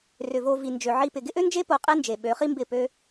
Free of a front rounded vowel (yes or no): no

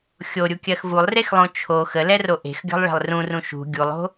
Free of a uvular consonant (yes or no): yes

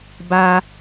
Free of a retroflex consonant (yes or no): yes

